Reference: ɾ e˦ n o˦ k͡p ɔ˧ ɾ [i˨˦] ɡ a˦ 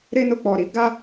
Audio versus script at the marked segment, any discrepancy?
yes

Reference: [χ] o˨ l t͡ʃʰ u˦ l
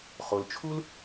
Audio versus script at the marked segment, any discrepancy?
no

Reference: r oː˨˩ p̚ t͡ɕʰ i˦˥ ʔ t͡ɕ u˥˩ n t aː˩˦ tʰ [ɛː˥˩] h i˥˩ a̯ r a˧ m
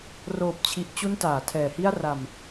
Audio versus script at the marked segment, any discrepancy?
yes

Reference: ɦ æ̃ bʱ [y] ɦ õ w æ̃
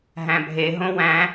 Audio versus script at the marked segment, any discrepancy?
yes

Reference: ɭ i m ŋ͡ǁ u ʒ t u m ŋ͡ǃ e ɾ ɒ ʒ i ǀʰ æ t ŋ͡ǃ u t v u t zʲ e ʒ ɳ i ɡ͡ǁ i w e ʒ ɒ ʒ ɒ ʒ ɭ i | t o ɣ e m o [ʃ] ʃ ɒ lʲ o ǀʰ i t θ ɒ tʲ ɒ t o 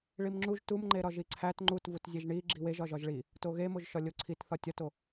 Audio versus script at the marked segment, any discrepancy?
yes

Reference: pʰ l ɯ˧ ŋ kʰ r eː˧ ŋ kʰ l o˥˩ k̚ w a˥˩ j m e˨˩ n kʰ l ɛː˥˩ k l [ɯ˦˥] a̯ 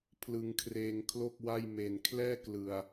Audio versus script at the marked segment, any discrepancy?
yes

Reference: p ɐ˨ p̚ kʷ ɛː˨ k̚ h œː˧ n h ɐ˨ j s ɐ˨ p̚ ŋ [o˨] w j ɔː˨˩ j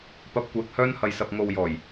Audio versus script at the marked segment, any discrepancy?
no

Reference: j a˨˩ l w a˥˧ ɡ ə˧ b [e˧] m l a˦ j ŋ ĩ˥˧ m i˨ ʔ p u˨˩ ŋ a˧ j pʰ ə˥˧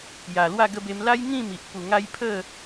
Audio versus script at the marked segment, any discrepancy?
no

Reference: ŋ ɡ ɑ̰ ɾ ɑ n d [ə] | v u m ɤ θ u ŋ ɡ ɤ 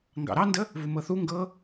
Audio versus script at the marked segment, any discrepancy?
no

